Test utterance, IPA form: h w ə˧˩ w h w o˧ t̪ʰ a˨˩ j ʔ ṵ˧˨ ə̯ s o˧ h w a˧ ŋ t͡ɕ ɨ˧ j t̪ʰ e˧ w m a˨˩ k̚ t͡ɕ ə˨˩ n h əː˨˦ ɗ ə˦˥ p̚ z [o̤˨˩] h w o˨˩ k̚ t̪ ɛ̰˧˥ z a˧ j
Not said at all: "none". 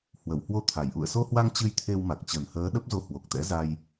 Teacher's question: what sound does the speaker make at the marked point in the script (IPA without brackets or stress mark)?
o˧